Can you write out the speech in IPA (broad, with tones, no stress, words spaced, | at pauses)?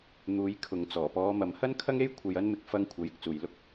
n̪uː˨˧jkʰʊ˨ŋ t͡sɔː˨˩pɔː˨˧ mɐ˨˧mhɐ˥nkʰɐ˥ŋe˥j kʷʰɐ˧jɐ˥nmɪ˧k̚ fɐ˧ŋkʷʰɐ˨˥j ɪ˧k̚t͡suː˨jlʊ˥k̚